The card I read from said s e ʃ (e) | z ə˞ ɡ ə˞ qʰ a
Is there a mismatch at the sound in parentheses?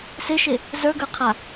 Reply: no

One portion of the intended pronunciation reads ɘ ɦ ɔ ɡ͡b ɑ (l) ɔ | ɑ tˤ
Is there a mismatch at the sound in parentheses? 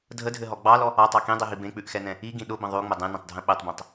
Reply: no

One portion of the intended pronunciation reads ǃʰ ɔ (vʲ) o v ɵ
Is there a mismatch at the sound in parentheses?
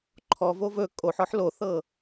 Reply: yes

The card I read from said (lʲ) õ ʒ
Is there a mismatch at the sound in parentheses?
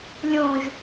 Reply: no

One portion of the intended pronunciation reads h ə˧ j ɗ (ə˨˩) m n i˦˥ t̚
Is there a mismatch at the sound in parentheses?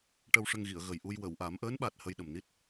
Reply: no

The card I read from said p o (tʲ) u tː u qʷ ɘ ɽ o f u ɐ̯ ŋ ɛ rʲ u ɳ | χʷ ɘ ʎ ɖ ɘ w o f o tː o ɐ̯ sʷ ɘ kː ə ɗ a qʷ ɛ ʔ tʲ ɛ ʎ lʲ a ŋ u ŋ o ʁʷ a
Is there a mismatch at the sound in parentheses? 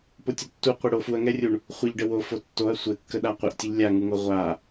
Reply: no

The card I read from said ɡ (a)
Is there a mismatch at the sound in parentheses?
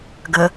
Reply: yes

